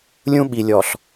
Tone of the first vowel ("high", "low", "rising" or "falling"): high